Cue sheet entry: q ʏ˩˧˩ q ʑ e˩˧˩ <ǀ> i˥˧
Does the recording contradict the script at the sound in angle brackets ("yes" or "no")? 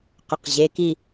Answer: yes